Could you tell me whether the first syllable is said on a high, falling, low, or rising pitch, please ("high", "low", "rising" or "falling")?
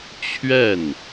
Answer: falling